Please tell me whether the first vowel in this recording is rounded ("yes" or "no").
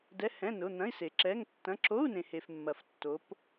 no